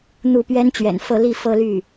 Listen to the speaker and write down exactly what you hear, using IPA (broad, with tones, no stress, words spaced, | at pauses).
n̪u˥˩ pɥɛ˥nt͡ɕɥɛ̰˨˩nfɤ˥˧ li˥˧fɤ˥˧ly˥˩